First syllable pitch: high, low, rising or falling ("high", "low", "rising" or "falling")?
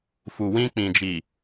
low